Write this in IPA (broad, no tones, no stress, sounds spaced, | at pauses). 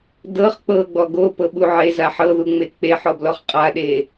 d ɤ χ k͡p ɤ ɡ͡b ɔ ɡ o p ɤ ɓ u ʕ e z a ħ ɤ ð u ŋ͡m e k͡p e ħ ɔ b l ɔ χ qʼ a ɗ e